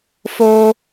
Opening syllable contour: high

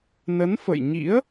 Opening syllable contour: rising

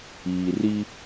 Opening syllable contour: low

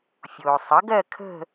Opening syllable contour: low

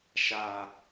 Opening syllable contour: low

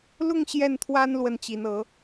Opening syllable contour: falling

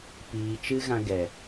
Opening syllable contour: low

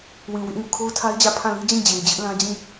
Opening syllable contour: low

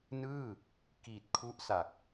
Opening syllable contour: falling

